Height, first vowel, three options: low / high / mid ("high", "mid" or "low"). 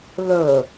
mid